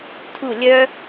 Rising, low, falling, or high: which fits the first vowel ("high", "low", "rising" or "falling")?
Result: falling